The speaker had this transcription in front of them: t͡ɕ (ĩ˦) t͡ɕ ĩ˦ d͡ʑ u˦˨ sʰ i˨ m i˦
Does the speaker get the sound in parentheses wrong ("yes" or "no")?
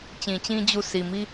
yes